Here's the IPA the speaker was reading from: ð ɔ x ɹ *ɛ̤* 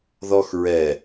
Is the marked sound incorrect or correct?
incorrect: ɛ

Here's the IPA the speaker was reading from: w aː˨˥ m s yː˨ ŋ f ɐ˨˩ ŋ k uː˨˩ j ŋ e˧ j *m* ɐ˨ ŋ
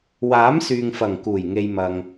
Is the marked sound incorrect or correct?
correct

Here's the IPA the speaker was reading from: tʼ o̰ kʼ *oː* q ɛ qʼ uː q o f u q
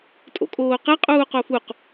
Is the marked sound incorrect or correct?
correct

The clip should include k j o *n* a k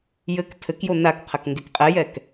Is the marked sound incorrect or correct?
correct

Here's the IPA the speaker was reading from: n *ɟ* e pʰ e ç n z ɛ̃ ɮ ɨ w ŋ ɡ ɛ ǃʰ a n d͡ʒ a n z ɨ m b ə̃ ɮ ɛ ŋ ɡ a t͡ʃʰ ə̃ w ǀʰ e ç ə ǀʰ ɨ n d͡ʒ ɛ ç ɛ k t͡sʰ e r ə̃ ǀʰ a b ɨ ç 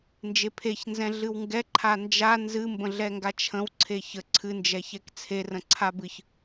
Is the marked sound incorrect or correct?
incorrect: d͡ʒ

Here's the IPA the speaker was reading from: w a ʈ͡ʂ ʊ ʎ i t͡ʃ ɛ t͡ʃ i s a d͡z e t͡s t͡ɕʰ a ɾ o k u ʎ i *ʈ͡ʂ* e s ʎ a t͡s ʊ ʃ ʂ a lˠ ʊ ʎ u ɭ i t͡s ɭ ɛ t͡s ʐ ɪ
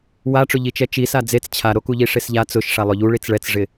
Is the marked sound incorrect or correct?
incorrect: ʂ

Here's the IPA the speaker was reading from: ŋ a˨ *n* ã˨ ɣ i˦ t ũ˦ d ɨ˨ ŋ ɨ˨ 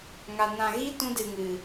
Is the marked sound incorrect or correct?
correct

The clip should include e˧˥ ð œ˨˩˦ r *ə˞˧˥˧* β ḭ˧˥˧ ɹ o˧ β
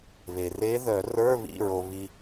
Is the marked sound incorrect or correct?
correct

